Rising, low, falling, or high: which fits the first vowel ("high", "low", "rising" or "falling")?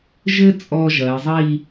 high